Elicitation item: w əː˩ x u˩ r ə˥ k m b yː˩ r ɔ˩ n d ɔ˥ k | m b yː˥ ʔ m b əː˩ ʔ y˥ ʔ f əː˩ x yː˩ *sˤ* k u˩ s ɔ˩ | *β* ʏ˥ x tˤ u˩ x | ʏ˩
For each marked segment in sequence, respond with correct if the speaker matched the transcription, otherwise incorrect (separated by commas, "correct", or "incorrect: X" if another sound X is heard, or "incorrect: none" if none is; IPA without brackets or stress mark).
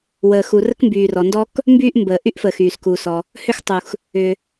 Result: incorrect: s, incorrect: h